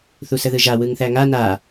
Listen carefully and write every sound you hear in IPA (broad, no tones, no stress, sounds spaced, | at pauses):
θ u s ə ð ɯ ʒ a w ɯ ŋ θ æ ŋ a n a